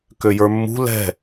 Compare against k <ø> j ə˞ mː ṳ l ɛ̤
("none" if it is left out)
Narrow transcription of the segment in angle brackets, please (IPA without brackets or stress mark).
ø